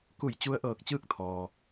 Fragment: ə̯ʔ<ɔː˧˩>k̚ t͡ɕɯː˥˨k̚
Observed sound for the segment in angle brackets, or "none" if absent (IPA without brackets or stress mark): ɤː˧˩